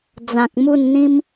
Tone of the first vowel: low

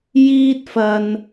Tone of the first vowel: high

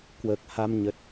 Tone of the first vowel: low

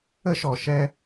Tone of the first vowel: high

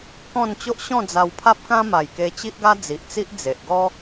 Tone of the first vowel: falling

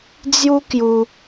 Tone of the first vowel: high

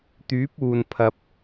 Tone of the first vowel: rising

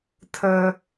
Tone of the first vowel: high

